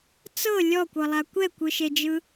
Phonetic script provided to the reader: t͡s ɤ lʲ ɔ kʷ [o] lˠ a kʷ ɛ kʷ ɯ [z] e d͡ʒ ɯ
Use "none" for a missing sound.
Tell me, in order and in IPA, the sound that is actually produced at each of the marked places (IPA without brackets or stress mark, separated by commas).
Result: ɤ, ʃ